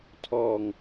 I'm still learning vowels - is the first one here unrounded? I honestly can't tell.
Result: no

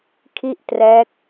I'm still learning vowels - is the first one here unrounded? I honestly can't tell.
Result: yes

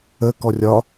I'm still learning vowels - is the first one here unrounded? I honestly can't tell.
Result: yes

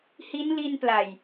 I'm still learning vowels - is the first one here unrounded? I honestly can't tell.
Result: yes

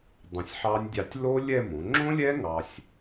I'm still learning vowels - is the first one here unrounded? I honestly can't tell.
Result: yes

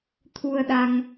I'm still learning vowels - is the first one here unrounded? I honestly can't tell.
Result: no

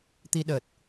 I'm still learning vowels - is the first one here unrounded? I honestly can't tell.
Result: yes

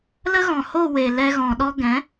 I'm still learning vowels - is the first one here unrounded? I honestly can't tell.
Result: yes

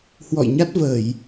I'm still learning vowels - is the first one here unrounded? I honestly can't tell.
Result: no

